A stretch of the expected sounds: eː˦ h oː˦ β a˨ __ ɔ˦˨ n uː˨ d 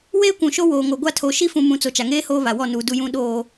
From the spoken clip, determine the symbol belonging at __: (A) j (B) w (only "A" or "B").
B